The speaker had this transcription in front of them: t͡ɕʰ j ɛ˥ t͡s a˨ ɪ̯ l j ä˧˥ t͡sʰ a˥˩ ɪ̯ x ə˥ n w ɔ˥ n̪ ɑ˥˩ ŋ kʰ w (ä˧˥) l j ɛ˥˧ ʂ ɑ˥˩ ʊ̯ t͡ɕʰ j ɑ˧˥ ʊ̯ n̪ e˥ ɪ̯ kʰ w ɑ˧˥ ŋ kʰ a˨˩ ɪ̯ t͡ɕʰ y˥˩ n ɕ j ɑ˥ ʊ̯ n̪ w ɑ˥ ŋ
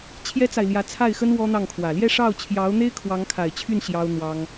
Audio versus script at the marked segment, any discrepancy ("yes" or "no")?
yes